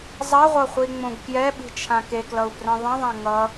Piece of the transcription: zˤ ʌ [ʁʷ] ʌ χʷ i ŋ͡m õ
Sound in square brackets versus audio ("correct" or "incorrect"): correct